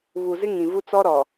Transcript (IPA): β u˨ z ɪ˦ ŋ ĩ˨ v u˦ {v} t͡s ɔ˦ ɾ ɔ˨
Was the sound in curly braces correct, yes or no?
no